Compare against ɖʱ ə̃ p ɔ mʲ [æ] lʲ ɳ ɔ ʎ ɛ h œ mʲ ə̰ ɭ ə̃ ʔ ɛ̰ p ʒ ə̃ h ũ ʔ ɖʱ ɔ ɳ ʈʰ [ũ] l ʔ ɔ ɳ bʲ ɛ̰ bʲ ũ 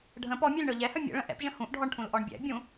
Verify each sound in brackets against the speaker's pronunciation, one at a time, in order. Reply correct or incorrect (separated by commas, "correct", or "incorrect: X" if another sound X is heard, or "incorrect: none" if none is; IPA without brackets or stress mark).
incorrect: a, correct